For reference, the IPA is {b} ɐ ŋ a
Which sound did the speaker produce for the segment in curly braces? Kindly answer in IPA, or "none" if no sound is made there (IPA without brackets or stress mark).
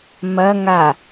m